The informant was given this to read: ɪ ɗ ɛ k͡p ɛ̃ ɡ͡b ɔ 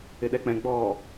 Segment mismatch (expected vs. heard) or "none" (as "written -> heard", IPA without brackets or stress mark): none